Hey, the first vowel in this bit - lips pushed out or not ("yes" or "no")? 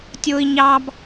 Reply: yes